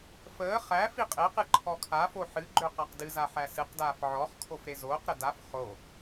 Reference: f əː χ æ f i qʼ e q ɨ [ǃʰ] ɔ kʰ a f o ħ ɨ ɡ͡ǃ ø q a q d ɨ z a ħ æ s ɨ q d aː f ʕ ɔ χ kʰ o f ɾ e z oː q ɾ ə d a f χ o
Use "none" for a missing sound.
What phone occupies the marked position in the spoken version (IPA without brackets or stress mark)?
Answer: ǃʰ